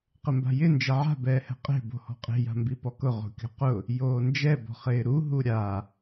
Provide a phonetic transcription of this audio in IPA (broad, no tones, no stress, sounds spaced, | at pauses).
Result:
q ɪ m b a̤ j ɪ n d͡ʒ ɛ ʕ a̤ b ɛː h ɛ̤ qʼ e̤ b o̤ h ɔ̤ qʼ e̤ j a̤ m b i p ɔ k ʊ ʁ o̤ kʲ ɔ̤ q ʊ | j oː n d͡ʒ ɛ b ɔ̤ χ ɪː ɾ u ɦ u ɾʲ a